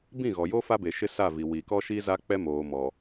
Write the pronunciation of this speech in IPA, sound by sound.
b ĩ˦˨ ɣ ɔ˨ j o˦ f a˦ b e˨ ʃ ɪ˦ s a˦˨ v i˨ w i˨ k ɔ˦ ʃ i˦ z a˦ k͡p ɛ˦ m oː˨ m ɔ˨

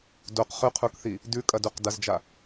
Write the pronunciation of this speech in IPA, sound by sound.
d o q χ ʉ qʰ u k θ i | d ʉ kʼ ɐ d u q d ɐ z d͡ʒ a

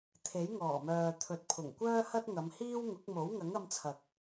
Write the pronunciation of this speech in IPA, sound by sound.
t̪ʰ e˨˥ j ŋ ɔː˨˩ m œː˨ t̪ʰ ɵ˨ t̚ pʰ ʊ˨˩ ŋ kʷ œː˥ h ɐ˥ t̚ ŋ ɐ˨˧ m h iː˥ w ŋ ʊ˨˥ k̚ m o˨˥ w ŋ ɐ˨˥ ŋ ɐ˧ m t͡sʰ ɐ˨ k̚

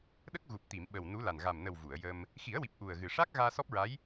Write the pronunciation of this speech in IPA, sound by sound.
ɗ ə˦˥ k̚ ɣ u˨˩ p̚ t̪ i˨˩˨ m ɓ ə˨˩ w n u˧˥ l a˨˩ n ɣ a˨˩ m n ə˨˩ w v u˨˩˨ ə̯ j ə˧ m | x i˨˩˦ ə̯ w i˨˩ p̚ ʔ u˨˩ ə̯ ɣ ɨ˨˩ ʂ a˦˥ k̚ ɣ aː˧ s ɔ˦˥ p̚ ɹ a˧˥ j

